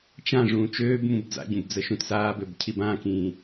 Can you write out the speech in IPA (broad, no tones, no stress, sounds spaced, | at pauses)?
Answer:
t͡ʃ ã ʐ ũː t͡ʃ øː b m ũ b d͡z a̰ ɟ ũ b d͡z ə ʃ ũ t s aː b ø b cʰ i b ã k ĩː